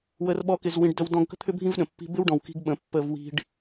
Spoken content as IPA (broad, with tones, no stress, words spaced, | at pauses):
wə˧r ɓɔ˦kɪ˧zwĩ˧ɖ də˦wdɔ̃˦ɡ kə̤˦t̪ʰʏ˦bʱĩ˦vɗə̃˨ pːi̤˧bɪ˦wɖɔ̃˨w ki̤˦ɡɓə̃˨˦ pːə˧vwi̤˧ɖ